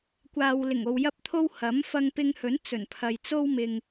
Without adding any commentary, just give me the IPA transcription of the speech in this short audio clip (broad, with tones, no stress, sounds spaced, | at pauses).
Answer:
kʷ aː˨ w l ɪ˨˩ ŋ o˧ w j ɐ˥ p̚ t̪ʰ o˥ w h ɐ˨˥ m f ɐ˧ ŋ p ɪ˧ ŋ h ɵ˨˥ n t͡s ɵ˨˩ n pʰ ɐ˨ j t͡s o˥ w m ɪ˨ ŋ